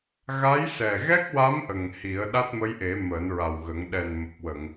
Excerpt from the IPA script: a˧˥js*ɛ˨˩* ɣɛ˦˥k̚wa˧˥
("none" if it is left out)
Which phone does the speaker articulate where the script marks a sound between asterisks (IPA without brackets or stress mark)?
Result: ɛ˨˩